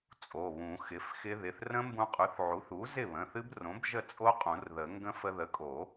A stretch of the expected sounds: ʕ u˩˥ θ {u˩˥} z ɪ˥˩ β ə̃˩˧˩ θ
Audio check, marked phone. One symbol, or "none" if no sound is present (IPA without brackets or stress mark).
u˩˥